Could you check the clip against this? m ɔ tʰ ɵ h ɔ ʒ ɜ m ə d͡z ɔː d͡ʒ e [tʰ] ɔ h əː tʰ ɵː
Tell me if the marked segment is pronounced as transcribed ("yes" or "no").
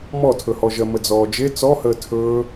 no